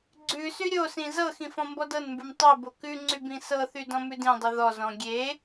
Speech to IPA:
ɡ͡ǀʉsy ɾʲosĩ zɤxĩ fɔ̃mbɔdɤnmbʉm tˤe bokʉŋ͡ǀy bĩsɤθy dɔ̃mʉdĩdˤi ðɔzɔ̃ ɡʲe

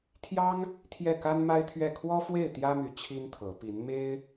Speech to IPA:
t̪ʰjɑ˥ŋ | t̪ʰjɛ˥˩ka˥nma˥ɪ̯t̪ʰɥɛ˥˩ kʰwɔ˥fwe˥˩ɪ̯ t̪jä˥my˧˥ t͡ɕʰi˥nt̪ʰɤ˧˥ pi˧˥n me˥ɪ̯

